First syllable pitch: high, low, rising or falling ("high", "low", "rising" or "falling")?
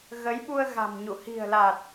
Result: rising